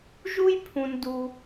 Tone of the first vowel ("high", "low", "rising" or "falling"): high